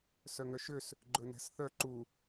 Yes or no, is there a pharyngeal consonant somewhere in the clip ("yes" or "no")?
no